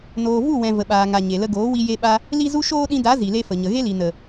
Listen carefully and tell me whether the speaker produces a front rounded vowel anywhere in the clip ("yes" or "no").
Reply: no